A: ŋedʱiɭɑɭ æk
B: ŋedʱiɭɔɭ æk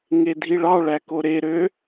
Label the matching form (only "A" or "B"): A